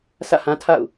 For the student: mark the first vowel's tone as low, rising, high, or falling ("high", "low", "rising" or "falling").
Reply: falling